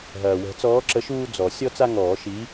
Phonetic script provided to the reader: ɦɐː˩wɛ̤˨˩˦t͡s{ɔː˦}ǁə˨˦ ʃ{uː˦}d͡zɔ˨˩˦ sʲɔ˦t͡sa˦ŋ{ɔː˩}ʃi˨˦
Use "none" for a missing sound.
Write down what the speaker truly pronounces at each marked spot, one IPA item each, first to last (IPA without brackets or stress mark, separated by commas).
ɔː˨˦, uː˦, ɔː˨˩˦